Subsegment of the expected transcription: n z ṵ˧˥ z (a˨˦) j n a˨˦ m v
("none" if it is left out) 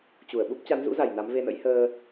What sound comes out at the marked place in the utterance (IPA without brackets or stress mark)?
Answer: a˧˩